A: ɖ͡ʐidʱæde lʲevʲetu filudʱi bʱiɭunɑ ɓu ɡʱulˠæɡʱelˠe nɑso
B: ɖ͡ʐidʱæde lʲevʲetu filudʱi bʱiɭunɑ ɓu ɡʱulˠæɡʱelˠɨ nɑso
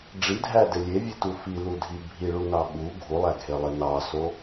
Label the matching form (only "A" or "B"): A